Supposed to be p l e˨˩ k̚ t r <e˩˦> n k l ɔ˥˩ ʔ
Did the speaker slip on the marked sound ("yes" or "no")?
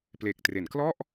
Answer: no